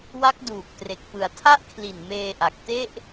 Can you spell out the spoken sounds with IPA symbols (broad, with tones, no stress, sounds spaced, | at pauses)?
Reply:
w a˦˥ k̚ d uː˨˩ k̚ t r e˨˩ k̚ p ɯ˩˦ a̯ tʰ a˥˩ ʔ kʰ l i˨˩ n m eː˧ ʔ a˨˩ k̚ t e˥˩ ʔ